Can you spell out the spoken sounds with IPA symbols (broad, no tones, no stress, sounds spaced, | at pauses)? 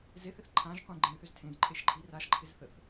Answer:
z e θ ɪ θ ǃʰ ã ʒ qʷ ẽ ɡ͡ǃ ẽ y̯ θ ʏ z tʰ ẽ j ǃʼ e ʃ ǃʼ i r a ʃ ǃʰ ɪ z θ ə θ